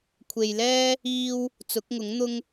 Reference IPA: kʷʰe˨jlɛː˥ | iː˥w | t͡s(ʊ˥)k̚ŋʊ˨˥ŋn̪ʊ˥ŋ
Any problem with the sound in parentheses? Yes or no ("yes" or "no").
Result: yes